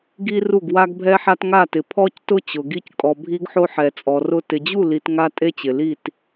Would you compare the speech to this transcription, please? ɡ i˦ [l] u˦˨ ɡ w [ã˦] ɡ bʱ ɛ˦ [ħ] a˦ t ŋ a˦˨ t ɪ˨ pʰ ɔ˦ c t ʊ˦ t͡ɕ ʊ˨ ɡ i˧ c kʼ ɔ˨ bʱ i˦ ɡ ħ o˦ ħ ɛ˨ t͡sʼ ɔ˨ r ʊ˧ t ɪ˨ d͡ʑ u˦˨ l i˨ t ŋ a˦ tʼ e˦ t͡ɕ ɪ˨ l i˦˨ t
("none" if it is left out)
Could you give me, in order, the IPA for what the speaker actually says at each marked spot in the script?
r, a˦, ħ

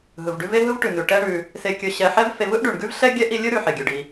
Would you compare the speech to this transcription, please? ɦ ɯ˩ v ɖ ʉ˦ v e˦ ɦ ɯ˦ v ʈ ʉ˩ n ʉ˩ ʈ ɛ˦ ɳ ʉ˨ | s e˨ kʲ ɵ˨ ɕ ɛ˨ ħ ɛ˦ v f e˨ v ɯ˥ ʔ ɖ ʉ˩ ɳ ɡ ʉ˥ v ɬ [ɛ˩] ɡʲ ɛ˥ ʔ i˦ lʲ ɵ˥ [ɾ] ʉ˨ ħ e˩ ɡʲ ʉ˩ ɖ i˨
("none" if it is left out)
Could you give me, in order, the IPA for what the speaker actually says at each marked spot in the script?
ɛ˥, ɾ

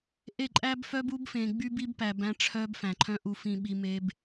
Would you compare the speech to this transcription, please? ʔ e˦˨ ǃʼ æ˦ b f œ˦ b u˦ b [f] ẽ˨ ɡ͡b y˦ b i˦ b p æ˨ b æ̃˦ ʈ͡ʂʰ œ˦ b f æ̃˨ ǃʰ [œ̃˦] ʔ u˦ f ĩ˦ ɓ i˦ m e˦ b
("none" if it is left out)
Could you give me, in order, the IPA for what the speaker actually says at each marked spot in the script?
f, œ̃˦

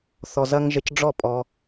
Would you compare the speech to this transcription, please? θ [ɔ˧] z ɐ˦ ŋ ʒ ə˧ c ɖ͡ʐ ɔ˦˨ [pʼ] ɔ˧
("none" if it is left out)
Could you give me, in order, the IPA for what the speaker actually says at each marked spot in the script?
ɔ˧, pʼ

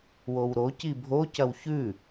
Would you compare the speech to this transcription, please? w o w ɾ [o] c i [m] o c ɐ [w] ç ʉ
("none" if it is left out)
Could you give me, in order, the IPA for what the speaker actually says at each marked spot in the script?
o, bʱ, w

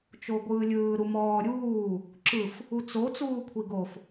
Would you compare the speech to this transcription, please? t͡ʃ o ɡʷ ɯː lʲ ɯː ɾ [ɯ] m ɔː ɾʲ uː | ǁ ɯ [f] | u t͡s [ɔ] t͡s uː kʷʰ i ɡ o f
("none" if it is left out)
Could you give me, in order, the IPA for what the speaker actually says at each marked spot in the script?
u, f, o

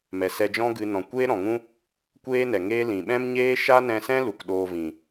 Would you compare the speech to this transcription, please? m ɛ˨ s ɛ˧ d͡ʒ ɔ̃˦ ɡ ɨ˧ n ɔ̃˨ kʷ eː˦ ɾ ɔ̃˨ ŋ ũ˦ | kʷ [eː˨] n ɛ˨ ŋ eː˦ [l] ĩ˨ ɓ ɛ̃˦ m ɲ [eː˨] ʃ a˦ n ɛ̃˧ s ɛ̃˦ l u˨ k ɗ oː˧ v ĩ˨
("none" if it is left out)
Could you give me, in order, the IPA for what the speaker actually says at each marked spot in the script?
eː˦, l, eː˦

